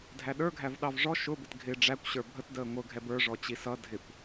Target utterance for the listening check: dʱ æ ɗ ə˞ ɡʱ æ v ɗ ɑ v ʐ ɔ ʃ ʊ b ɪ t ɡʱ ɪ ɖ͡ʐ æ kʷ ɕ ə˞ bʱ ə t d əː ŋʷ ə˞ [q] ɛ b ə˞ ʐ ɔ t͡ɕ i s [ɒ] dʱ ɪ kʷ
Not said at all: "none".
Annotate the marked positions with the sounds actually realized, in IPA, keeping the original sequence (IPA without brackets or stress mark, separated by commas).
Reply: ɡʱ, ʌ